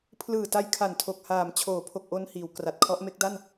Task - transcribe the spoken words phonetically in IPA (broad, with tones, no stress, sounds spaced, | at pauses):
pʰ l ɯː˨˩ t a˧ j kʰ a˨˩ n tʰ o˨˩ k̚ h aː˩˦ m t͡ɕʰ oː˩˦ pʰ o˨˩ k̚ ʔ o˧ n h iː˩˦ w k r a˨˩ t̚ kʰ ɔ˦˥ ʔ m e˦˥ k̚ d a˥˩ n